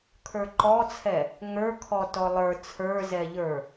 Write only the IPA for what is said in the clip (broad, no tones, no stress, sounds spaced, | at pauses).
kʰ ə˞ ǃ ɔ t͡sʰ ɛ | ŋ ə˞ kʰ ɔ t ɔ lˠ ə˞ t͡sʰ ə˞ z ɛ ʎ ə˞